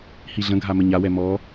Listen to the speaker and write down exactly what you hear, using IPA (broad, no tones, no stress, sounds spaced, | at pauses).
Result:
h i ɮ ə̃ ɡʱ a m ə ɲ a w ɛ m ɔ